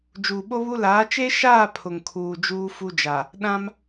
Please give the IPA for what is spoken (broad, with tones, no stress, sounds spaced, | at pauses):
d͡ʒ uː˨ ɓ o˦ β u˦ l aː˨˦ t͡ʃ e˦ ʃ aː˦˨ pʰ ʊ˨ ŋ kʰ uː˨ d͡ʒ uː˦ f u˦ d͡ʒ a˨ | ɗ ã˦ m